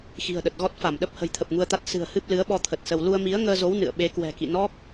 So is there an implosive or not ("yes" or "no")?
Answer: yes